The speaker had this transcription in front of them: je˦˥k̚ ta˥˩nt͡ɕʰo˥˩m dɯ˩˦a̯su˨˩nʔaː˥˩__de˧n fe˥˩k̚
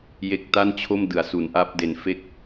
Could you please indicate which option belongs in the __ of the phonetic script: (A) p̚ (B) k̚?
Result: A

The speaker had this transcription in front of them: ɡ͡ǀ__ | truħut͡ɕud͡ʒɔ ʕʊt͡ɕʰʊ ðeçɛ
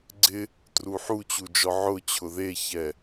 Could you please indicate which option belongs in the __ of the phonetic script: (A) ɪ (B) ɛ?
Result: A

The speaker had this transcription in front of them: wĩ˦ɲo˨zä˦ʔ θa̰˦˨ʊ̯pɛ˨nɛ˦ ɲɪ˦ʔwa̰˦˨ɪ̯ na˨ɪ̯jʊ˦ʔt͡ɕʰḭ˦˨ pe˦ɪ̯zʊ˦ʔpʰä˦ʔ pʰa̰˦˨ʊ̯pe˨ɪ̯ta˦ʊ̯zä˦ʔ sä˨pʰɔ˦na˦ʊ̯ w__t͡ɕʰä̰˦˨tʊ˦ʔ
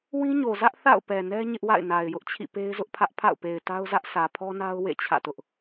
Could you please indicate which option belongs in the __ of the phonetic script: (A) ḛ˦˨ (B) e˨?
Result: A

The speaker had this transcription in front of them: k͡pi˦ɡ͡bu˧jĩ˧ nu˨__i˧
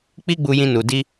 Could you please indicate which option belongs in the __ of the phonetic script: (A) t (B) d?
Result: B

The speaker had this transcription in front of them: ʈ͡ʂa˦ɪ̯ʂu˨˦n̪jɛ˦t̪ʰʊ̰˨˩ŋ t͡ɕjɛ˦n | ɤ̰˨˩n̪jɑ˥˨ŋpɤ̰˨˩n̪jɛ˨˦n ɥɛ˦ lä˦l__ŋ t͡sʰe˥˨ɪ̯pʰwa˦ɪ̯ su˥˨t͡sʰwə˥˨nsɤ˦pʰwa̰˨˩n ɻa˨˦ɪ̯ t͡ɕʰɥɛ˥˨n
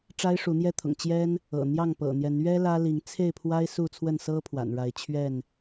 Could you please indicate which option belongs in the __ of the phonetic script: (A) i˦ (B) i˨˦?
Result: B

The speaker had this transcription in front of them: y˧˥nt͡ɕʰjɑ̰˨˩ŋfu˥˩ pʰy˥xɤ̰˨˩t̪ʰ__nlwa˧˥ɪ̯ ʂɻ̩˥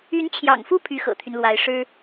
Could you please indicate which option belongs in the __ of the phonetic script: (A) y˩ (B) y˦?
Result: B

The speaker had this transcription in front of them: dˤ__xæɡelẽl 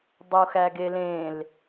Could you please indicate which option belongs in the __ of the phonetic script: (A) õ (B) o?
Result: B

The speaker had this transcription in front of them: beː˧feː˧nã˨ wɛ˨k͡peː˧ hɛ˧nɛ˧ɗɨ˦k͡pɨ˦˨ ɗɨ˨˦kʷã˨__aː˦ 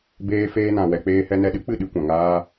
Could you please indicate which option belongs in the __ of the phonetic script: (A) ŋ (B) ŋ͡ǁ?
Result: A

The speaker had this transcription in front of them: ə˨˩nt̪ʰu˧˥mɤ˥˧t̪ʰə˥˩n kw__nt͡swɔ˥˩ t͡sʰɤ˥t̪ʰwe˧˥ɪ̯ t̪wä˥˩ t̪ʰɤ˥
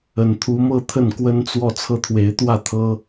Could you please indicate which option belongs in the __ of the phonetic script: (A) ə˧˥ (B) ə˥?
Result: B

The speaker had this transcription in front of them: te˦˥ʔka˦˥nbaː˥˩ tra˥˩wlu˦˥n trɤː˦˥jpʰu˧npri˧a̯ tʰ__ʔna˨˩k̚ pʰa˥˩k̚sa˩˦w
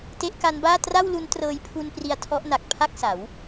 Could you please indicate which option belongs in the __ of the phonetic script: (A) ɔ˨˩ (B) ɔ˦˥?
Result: B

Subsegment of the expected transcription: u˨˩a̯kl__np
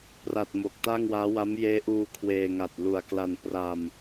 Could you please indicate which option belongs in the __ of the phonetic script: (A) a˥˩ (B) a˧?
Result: B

